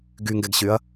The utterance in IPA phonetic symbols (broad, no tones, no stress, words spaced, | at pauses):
ɡyŋɡɛɡɕyɐ̯